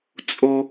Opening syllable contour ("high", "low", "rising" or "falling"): high